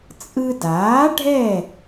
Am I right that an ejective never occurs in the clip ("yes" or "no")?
no